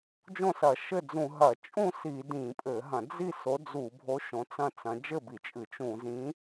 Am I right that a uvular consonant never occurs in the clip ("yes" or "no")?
yes